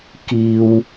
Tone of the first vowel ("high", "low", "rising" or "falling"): low